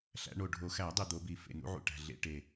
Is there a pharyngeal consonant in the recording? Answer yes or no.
yes